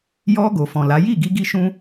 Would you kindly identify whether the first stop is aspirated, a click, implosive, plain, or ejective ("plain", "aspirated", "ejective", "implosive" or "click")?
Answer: plain